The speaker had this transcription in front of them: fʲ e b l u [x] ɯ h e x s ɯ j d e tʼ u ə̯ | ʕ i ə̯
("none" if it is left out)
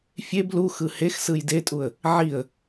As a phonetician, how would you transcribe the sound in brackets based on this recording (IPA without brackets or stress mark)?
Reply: x